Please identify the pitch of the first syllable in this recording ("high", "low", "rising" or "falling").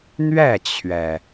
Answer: falling